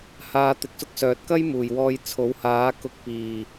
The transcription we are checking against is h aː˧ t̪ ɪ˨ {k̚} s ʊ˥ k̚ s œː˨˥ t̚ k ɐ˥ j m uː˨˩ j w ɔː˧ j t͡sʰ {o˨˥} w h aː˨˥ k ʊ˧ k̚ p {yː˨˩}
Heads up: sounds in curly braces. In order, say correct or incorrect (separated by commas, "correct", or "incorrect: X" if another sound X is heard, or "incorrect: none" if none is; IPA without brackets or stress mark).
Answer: correct, correct, incorrect: iː˨˩